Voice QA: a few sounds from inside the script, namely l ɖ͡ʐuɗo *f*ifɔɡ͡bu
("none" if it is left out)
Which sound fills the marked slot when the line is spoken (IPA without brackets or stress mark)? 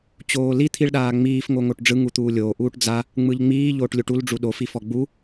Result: f